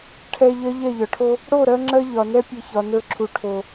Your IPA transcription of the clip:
ʈʰ ɛ˧ ʎ ɜ˦ ʎ ɛ˦˨ ʎ ɒ˨ ʈʰ o˦ | ɽ o˦˨ ɾ ɜ˦ ŋ͡ǁ ɜ˦ ʎ ɒ˨ n ɛ˦ pʲ ɛ˧ ç ɒ˨ n ə˞˧ ǁʰ u˨ ʈʰ o˨

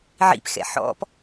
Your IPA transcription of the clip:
ʕ ḭ p x ɛ̰ ħ ɔ̰ p

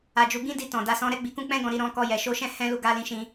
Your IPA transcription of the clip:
a˧ d͡ʒ u˧ ɡ ĩ˦ d i˧ t ɔ̃˨ d a˨˦ s ɔ̃˧ ɾ ɛ˦ ɡ͡b i˧ k ũ˦ k͡p ɛ̃˦ ɡ ɔ̃˦˨ ɾ i˨˦ ɾ ɔ̃˦ k ɔ˧ j ɛ˨ ʃ o˧ ʃ ɛ̃˦ h ɛ̃˦ l u˧ ɡ a˧ l ĩ˧ ʃ ĩ˧

